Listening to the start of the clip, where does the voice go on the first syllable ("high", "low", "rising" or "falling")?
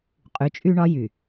rising